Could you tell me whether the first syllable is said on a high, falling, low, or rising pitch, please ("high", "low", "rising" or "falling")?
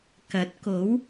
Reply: rising